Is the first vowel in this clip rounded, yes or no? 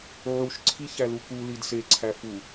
yes